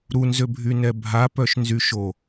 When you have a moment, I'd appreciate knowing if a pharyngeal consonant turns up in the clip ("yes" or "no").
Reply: no